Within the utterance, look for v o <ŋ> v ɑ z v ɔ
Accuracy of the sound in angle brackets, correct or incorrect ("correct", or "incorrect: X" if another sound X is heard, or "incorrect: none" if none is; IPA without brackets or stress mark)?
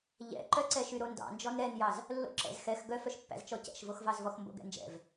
incorrect: x